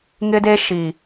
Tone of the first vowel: high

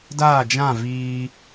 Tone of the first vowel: falling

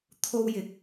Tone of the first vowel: high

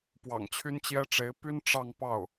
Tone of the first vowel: low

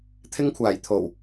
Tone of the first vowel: high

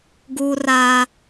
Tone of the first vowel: high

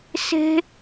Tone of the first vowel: high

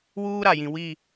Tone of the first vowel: high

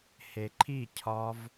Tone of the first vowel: low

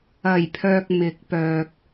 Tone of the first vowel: low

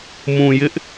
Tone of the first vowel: low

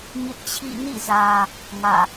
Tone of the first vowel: high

